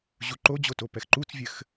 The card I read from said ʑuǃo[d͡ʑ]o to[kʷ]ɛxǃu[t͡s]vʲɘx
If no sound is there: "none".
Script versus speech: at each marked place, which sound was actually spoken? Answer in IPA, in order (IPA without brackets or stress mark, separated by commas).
d͡ʑ, p, t͡s